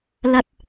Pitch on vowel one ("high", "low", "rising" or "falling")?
high